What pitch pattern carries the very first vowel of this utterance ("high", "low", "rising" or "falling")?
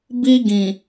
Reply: high